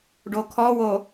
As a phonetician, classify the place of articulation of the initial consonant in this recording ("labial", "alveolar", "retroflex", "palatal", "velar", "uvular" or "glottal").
retroflex